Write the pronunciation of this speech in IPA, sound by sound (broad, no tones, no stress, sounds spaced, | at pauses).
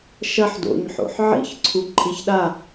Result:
ʃ ɐ ħ d o̰ ɲ ħ o̰ ħ ʕ ḭ ç ǀʰ u ǃʼ i ç ɗ a